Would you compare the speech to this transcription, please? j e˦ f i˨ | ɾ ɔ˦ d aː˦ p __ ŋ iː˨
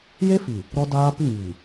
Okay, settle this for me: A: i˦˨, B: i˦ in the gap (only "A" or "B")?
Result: A